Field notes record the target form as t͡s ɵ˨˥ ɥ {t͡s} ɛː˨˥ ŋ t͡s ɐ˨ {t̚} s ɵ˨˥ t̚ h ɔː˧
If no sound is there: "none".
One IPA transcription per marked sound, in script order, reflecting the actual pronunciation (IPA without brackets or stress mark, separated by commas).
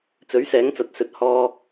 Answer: s, t̚